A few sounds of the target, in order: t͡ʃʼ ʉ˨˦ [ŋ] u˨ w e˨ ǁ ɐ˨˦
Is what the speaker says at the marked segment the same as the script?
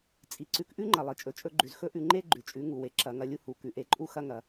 yes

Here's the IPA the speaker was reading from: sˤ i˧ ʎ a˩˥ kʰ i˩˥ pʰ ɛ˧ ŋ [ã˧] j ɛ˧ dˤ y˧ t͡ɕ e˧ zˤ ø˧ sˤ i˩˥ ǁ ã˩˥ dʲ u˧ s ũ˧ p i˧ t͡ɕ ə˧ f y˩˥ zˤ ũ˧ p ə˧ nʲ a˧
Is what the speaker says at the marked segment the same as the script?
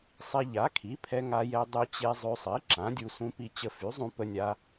no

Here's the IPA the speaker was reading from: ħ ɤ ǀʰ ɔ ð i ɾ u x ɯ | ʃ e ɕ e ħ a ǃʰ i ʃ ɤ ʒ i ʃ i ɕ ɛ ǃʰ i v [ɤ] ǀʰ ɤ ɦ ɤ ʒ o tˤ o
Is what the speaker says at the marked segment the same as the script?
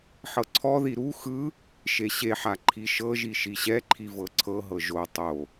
yes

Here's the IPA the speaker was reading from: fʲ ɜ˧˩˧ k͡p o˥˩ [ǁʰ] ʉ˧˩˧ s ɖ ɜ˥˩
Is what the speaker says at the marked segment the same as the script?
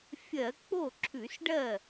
yes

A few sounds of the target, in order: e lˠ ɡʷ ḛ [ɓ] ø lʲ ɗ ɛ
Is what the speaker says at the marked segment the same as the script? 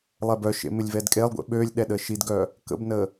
yes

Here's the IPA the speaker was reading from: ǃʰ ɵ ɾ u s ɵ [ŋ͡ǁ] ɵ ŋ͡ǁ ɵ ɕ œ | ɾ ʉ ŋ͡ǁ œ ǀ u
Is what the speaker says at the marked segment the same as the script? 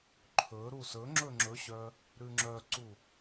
yes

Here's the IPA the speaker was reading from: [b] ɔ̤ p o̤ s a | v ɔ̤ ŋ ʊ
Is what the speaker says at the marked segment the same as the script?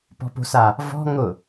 no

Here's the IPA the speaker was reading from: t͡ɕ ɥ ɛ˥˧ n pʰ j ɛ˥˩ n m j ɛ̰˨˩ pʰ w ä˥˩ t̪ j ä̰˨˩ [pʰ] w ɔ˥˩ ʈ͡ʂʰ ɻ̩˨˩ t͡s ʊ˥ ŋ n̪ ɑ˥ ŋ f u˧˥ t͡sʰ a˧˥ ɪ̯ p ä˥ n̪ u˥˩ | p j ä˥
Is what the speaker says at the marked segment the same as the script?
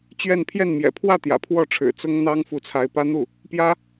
yes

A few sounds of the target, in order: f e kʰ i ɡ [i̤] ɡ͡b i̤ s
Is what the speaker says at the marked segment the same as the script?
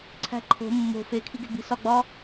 no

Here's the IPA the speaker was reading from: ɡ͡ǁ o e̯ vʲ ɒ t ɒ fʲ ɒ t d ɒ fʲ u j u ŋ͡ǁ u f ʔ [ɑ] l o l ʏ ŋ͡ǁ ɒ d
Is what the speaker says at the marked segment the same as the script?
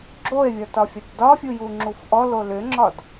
no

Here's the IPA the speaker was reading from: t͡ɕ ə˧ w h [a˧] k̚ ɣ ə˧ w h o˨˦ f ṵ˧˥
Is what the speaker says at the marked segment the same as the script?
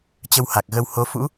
no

